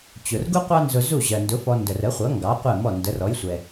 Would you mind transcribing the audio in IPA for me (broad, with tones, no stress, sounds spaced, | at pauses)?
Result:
t͡ɕ ʊ˩ r ɡ u˥ qʷ ɑ˥ n z ʊ˧ z u˥˩ ʑ ɜ˩ n d ʊ˩˥ f ɔ˧ n d ə˩ r ə˩˥ χʷ ʌ˩˥ ŋ ɡ ɑ˩˥ qʷ ɛ˥˩ m ɔ˥˩ n d ə˩˥ r ɔ˩˥ j sʷ ɛ˩